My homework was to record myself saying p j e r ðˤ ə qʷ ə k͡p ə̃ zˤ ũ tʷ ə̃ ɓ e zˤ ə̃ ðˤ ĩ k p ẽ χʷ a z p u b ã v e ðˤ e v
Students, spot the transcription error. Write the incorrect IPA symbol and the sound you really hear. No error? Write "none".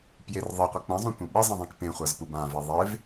none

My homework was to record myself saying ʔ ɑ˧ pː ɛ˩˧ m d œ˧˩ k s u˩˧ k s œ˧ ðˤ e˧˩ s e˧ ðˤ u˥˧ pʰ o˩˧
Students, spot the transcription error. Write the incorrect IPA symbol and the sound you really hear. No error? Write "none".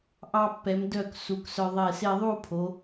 none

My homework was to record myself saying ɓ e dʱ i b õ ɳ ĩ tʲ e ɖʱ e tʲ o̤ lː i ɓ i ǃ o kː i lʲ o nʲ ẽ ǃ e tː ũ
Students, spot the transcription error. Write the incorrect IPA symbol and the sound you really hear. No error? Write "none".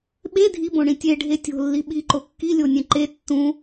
none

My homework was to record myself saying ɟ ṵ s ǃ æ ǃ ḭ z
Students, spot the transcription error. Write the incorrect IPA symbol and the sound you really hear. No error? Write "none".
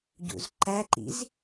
s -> z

